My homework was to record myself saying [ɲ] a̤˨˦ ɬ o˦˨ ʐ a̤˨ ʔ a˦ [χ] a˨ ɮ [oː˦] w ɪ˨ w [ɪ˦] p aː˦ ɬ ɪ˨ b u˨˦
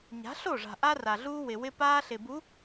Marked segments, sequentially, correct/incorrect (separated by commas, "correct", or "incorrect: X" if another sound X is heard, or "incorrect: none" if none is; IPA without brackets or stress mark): correct, incorrect: r, incorrect: uː˦, correct